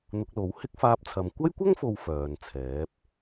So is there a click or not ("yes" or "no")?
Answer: no